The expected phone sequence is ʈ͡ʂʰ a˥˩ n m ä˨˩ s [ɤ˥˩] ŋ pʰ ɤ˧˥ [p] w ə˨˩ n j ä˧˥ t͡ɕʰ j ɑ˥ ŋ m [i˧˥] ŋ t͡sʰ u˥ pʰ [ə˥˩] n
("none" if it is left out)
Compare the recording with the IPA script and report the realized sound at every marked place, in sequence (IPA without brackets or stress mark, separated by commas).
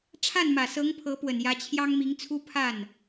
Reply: ɤ˧˥, p, i˧˥, a˥˩